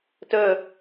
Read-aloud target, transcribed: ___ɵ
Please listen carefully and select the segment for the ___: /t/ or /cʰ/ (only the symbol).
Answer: t